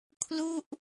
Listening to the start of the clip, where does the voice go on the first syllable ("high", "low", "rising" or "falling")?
falling